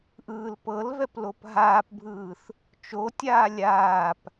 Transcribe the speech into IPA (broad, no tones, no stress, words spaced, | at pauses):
ʔɯːlpɤlvɛp lopɦaːpbʱɯːθ | t͡ʃotʲaː lʲaːp